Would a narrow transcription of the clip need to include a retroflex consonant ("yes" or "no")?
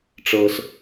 yes